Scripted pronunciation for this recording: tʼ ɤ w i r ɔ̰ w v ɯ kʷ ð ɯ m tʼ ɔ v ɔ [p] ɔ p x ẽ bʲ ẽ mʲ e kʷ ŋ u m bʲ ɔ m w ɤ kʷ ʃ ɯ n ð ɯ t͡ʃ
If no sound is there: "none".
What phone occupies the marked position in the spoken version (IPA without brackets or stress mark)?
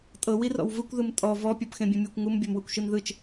pʲ